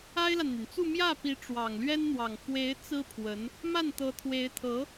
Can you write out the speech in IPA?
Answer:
a˥ ɪ̯ l a˨ n n̪ y˩ n t͡s u˥˧ m j ä˥˩ p i˧˥ ʈ͡ʂ w ɑ˨˩ ŋ l ɥ ɛ˥ n n̪ w ɑ˨˩ ŋ f w e˧˥ ɪ̯ t͡s ɹ̩˥ pʰ w ə˧˥ n | m a˥˩ n t̪ ɤ˧˥ t̪ʰ w e˧˥ ɪ̯ t̪ʰ ɤ˧˥

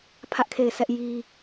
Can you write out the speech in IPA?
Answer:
pʰ ä˦ ʔ kʰ e˦˨ ɪ̯ sʰ ɛ˦ ʔ j i˦

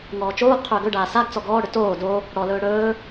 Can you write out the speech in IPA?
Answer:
ŋ ɔː t͡ʃ oː ɡ qʰ ʏː ɡ ɵ ɖ aː s a ɡ t͡s ɔ ɡ ɔː ɽ ʏ t oː d o | ɽ ɔ l ɵː ɽ ɵː

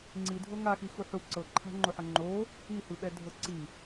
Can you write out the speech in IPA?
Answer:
ŋ͡ǀ i dʱ ɤ ŋ a x i x u ħ u ǀ ɤ ǃʰ a̤ ŋ͡ǃ o ħ ɤ ŋ͡ǃ o | i h ɯ ɓ ɛ dʱ ɤ ǀ i

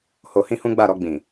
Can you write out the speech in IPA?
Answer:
h o˧ h ĩ˦ h ũ˦ ɡ͡b a˦˨ ɾ ɔ˧ ɡ͡b ĩ˨

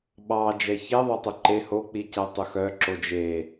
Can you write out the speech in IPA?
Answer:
ɓ ɑ d͡ʒ ɛ ç e ðˤ œ tˤ o ǃ e h o k͡p i c æ tˤ ɵ x œ ǁ o d͡ʒ e

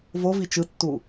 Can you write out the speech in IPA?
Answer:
v o v i t͡ʃ ɯ tː u

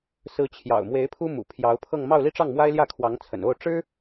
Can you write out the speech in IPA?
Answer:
s ɹ̩˧˥ t͡ɕʰ j ɑ̰˨˩ ʊ̯ m w e˧˥ ɪ̯ pʰ u˥ m ṵ˨˩ pʰ j ɑ˧˥ ʊ̯ pʰ ɤ˥˧ ŋ m ɑ˥˧ ʊ̯ l i˥˧ ʈ͡ʂ ɑ˥˩ ŋ m w a˥ ɪ̯ l j ä˥˩ kʰ w ɑ˧˥ ŋ t͡sʰ ə̰˨˩ n o˥˩ ʊ̯ ʈ͡ʂ ɻ̩˥

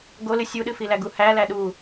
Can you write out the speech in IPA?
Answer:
ɡ o l ɨ sʲ u ɗ ɨ f i l æ ɡ u h æ l æ ɗ u

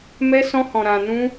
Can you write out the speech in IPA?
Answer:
m ɛ˦ s ɔ̃˦ h ɔ̃˧ ɾ ã˧ n ũ˦

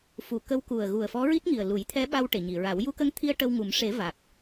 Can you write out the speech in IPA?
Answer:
f u˨˩˨ k ə˧˥ w k u˨˩ ə̯ ɣ u˨˩ ə̯ f ɔ˧˥ ɹ i˦˥ t̚ ŋ i˨˩ ə̯ l u˨˩˦ j t̪ʰ ɛ˧˥ ɓ a˧ w ʈ e˨˩˨ ɲ i˨˩˨ ɹ a˨˩˦ w j u˧ k ə˧˥ ŋ t̪ʰ i˧ ə̯ ʈ ə˧ w ŋ u˨˩˦ m ʂ e˨˩˦ v a˨˩ k̚

